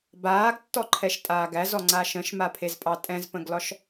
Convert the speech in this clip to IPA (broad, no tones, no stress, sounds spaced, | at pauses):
b aː ɡ tː ɔ ǃʰ ɛ ʃ tʼ aː ɡ æ z ɔ ŋ͡ǀ a ʃ ə̃ ʃ m a pʰ e z pʼ ɑ tʼ ɛ̃ z p ə̃ ɡ l ɒ ʃ